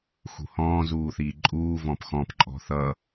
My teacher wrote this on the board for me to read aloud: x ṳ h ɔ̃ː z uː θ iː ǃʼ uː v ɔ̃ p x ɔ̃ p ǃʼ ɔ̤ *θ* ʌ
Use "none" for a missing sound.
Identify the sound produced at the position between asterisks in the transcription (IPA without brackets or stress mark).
θ